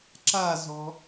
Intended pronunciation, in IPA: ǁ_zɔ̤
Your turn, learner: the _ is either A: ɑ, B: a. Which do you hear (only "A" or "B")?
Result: B